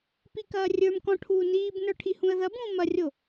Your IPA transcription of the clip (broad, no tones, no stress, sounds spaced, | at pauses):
p i k ɐː rʲ ə˞ m k ɔ̃ ʈʰ uː n iː b n ə˞ ʈʰ i h ũ ə̯ ð ɐ b ũː m ɐ rʲ o